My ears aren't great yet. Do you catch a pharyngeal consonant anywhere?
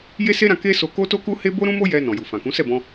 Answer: no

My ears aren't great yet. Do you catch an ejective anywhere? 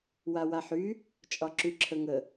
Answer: yes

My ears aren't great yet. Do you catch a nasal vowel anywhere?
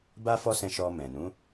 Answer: yes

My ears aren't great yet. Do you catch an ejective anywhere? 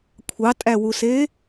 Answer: yes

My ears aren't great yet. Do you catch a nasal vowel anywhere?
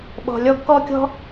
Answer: no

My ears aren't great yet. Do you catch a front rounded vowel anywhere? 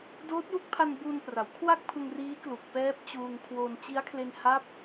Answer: no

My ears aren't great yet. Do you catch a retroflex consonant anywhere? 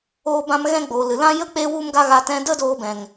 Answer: no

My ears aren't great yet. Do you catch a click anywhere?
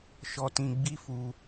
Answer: no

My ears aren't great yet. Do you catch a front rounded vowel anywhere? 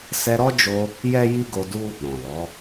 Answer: no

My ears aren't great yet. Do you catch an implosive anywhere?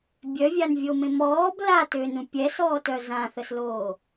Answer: no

